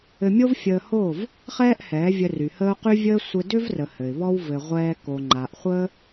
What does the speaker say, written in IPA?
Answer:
ɘ˧ mʲ o˦ v fʲ əː˧ h oː˦˨ v | χ ɛː˦ ʔ h ɛː˨˦ vʲ ə˧ r y˨ h əː˦ ʊ̯ q y˦ vʲ əː˦ sʷ ɘ˦ d ʏ˦ v r ə˨ h ɘ˨ ɪ̯ β ɔ˦ w v ɘ˧ ʁʷ ɛː˧ k o˨ ŋ͡ǃ a˨ ʔ χʷ əː˦

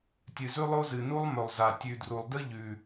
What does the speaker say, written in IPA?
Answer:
tʲ ɨ˩ z ʉ˥ lˠ o˥ z ɨ˩ n u˥ lˠ m ɵ˩ lˠ z a˩ tʲ ʉ˩ d r u˩ lˠ d ɨ˥ ʎ ʉ˩

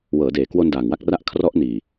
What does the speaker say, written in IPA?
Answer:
w ɤː˩˦ d eː˨˩ k w o˧ n d aː˨˩ ŋ w a˥˩ k̚ r a˥˩ ʔ kʰ r ɔ˦˥ ʔ n iː˨˩

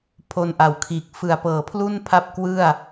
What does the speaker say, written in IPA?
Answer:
pʰ o˧ n ʔ a˨˩ w kʰ iː˨˩ k̚ f ɯ˧ a̯ p ɤː˨˩ pʰ l u˥˩ n pʰ a˦˥ p̚ k w ɯ˥˩ a̯

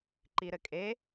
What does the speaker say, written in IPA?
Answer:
ǃ i ɾ ɘ kʼ e

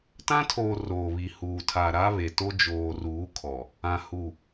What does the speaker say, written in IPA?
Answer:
t ã˦ tʰ oː˨ r oː˨ β i˨ h uː˨ tʰ a˨ ɾ a˦ β e˨ t o˦ d͡ʒ oː˨ r uː˨˦ kʰ ɔ˨ | ã˨ h u˨

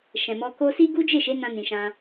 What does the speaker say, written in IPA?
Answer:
ʃ ɛ̃˨ m ɔ˧ k o˧ s i˦ ɡ u˦ d͡ʒ e˦˨ ʃ e˨˦ n ã˧ n ĩ˨ ʃ ã˧

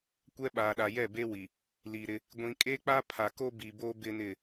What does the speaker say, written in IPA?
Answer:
kʷ ɛ˦ ɓ aː˨ ɗ a˨ j ɛ˦˨ b e˦ w i˨ | l i˨ ɾ ɪ˦ | ɡʷ ĩ˨ kʼ e˦ k͡p a˦ pʰ a˨ k o˦ b i˨ b o˦ b ɪ˦ n ɪ˦˨

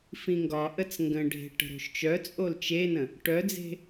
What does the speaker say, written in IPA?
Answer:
f ĩ ŋ ɡ ɒ ʔ ə t͡s ŋ ɡ ə̃ ɖʱ e̤ ʈ ə̤ ɾ o̤ ʃ t͡ʃ œ t͡sʼ o l t͡ʃ e n ə̃ | ʈ œ d͡z e̤

